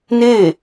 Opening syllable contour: falling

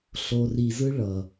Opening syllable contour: low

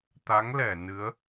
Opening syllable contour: rising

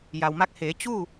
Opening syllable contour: low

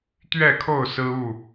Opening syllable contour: falling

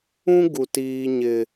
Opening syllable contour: high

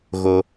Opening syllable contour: high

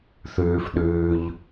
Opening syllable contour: low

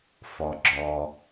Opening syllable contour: low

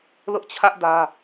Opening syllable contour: high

